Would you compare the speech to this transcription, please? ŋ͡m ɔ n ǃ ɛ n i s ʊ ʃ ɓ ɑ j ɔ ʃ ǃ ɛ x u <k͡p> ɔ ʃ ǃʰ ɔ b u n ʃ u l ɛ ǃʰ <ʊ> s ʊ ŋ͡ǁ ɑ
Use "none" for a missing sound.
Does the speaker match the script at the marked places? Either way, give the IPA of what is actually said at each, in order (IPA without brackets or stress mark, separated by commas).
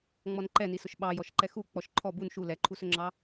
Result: k͡p, u